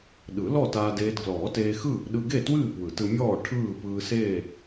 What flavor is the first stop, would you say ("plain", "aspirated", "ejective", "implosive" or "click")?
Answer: implosive